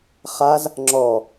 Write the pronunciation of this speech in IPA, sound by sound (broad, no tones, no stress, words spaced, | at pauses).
χaz | ŋ͡ǁɔ